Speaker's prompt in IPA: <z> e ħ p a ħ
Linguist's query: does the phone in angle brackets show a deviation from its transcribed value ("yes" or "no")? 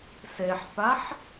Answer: yes